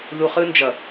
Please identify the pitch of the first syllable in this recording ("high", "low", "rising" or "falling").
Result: low